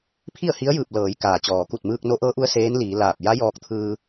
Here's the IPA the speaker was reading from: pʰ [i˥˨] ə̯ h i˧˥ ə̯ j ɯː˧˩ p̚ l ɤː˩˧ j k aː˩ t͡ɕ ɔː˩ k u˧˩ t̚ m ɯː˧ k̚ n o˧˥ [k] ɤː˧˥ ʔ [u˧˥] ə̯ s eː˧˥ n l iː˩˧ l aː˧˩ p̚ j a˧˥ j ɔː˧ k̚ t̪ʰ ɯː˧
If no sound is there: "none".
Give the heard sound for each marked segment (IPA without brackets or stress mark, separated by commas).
i˥˨, ʔ, u˧˥